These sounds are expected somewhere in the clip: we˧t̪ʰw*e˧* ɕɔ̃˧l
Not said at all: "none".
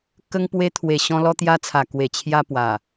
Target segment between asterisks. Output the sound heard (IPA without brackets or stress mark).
e˨˩